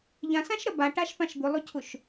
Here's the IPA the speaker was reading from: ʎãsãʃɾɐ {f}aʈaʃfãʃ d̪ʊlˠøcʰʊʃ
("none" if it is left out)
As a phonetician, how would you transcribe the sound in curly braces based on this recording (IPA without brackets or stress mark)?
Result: b